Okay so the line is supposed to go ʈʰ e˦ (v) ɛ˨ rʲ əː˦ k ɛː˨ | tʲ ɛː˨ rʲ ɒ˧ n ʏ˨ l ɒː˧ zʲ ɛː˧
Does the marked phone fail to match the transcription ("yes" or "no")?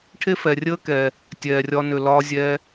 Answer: yes